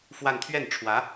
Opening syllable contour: falling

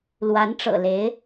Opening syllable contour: rising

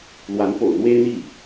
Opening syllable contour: rising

